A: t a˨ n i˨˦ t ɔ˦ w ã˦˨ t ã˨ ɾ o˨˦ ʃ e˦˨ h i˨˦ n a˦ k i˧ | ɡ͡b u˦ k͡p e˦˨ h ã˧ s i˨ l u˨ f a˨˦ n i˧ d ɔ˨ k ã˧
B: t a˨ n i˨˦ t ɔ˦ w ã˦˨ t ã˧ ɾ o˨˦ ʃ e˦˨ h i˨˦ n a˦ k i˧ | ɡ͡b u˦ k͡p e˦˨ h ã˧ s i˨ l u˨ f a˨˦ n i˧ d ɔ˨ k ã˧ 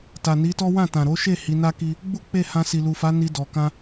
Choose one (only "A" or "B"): A